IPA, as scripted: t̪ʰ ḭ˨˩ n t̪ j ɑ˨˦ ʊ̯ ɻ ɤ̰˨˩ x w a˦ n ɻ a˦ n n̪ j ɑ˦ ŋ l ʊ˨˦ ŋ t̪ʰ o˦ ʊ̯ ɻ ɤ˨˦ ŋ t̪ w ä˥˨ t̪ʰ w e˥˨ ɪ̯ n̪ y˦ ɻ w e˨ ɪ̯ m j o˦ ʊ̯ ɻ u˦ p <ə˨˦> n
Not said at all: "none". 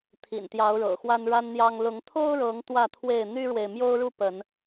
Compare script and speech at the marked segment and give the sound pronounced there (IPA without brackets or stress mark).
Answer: ə˨˦